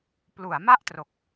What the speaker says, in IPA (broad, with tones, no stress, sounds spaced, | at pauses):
p l u˩˦ a̯ m a˥˩ ʔ t r o˨˩ k̚